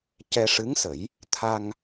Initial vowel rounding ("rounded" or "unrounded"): unrounded